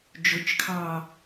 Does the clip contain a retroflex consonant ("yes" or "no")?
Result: no